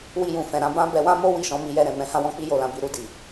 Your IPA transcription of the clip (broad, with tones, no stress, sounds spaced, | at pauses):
w i˧ j ũ˨ f ɛ̃˨ ɾ ã˧ b ã˦ b ɛ˧ w ã˦ m o˦ w i˦˨ ʃ ɔ̃˧ m i˧ j ɛ˧ ɾ ɛ̃˨ m ɛ̃˧ h ã˦ w ɔ̃˦ k͡p i˦ j o˦˨ l ã˨˦ b i˦˨ ɾ u˧ d i˨